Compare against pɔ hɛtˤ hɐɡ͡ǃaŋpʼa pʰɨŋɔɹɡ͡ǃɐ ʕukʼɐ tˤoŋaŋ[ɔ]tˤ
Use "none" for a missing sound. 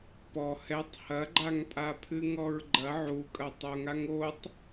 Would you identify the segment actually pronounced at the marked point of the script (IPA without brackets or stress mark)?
o